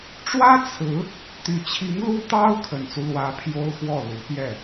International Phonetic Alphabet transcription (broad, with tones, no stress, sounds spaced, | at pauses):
ʈ͡ʂ w ä˥ t͡sʰ ɹ̩˧˥ | t̪ y˨˩ t͡ɕʰ i˧˥ ŋ l u˥ t̪ ɑ˥ ʊ̯ kʰ ə˨˩ n t͡s u˦ l w ä˧˥ pʰ j o˥ ʊ̯ x w ɔ˥˩ l u˧˥ p j ɛ˥˩